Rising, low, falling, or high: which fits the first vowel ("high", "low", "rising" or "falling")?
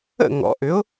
falling